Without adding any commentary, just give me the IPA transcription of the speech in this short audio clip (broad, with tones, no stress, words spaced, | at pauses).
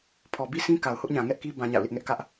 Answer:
pʰɔ˨bi˦sʰĩ˦ ka˨ʊ̯hʊ˦ʔ ɲã˨ŋɛ˦ʔki˦ bã˦ɲa̰˦˨ʊ̯lɪ˦ʔ ŋɛ˦ʔkä˦ʔ